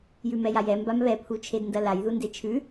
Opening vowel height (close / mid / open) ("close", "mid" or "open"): close